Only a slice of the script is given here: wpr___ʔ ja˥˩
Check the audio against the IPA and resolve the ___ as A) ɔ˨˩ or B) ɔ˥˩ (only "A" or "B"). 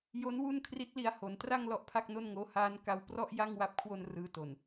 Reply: B